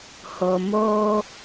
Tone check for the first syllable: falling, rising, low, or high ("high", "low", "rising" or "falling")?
low